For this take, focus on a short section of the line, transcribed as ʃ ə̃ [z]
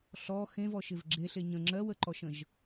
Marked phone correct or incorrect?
incorrect